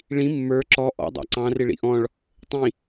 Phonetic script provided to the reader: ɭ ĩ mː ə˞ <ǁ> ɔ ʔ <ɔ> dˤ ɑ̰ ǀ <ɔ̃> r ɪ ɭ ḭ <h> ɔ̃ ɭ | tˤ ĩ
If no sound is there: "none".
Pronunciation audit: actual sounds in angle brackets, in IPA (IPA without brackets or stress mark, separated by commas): ǁ, ɔ̰, ɑ̃, ʔ